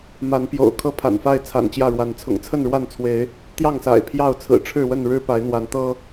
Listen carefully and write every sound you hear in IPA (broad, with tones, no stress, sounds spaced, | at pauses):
m a˨˦ n p j o̰˨˩ ʊ̯ kʰ ɤ˦ pʰ a̰˨˩ n f a˥˨ ɪ̯ t͡sʰ a̰˨˩ n t͡ɕ j ä˥˨ ɻ w a˨˦ n t͡sʰ ʊ̰˨˩ ŋ t͡sʰ ə˥˨ n ɻ w a˥˨ n t͡sʰ w e˨˦ ɪ̯ | t̪ j ɑ˥˨ ŋ s a̰˨˩ ɪ̯ pʰ j ɑ˥˨ ʊ̯ t͡sʰ ɹ̩˨˩ ʈ͡ʂʰ ɻ̩˥˨ w ə˥˨ n ɻ ɻ̩˦ p a˨˦ ɪ̯ n̪ w a˨˦ n t̪ ɤ˦